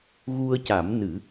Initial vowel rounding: rounded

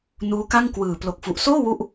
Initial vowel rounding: rounded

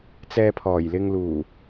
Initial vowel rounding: unrounded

